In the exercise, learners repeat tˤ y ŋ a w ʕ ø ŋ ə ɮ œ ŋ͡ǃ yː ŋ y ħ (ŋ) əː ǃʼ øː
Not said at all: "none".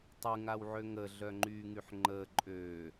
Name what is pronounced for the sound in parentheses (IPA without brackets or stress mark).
ŋ͡ǃ